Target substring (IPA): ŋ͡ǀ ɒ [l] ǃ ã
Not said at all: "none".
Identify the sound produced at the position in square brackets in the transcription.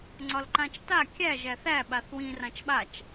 l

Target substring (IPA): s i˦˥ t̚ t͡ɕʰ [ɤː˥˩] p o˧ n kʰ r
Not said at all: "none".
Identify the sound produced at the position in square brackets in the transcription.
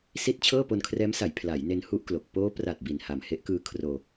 ɤː˥˩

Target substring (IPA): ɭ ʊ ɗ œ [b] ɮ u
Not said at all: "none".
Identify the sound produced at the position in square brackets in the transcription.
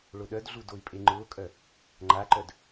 d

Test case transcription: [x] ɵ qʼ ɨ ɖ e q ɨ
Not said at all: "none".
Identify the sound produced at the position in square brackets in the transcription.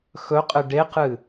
x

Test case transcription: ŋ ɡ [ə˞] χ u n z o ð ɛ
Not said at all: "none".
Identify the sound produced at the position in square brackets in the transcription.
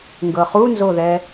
ɤ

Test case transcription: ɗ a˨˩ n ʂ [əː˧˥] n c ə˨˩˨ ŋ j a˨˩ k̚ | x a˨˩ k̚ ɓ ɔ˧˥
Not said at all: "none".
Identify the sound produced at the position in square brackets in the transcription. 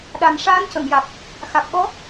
aː˧˥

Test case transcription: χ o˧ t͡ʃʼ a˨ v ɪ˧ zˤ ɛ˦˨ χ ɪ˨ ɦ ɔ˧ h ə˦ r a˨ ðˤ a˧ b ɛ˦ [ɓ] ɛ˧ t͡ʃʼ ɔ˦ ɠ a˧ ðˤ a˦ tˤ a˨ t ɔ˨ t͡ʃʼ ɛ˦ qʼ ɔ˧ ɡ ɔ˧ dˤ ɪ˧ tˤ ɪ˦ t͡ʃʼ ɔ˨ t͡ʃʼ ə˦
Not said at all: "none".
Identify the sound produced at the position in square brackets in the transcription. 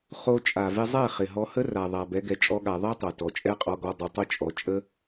ɡ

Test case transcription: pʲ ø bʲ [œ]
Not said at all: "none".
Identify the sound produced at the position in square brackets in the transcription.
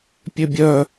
œ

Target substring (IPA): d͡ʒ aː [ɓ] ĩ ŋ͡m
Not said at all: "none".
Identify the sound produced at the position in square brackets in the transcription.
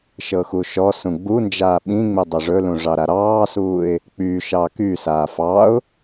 ɓ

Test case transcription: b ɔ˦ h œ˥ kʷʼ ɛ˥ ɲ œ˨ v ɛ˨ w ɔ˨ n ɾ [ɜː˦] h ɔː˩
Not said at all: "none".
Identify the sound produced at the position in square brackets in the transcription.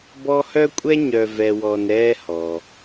ɛː˦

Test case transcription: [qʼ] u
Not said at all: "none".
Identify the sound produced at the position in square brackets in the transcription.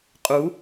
qʼ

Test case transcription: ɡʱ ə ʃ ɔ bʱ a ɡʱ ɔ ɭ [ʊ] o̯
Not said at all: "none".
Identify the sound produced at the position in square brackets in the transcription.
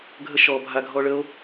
ə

